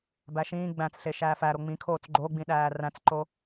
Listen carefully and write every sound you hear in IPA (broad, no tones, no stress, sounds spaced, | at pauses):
b æ ʃ ĩː ɡ͡b æ̃ t͡s ɬ e ʃ æː f æ ɾ o ŋ͡m ĩ kʰ oː t͡s ɡ͡ǃ o ɡ͡b ĩ ɗ æː r æ̃ t͡s ǃ o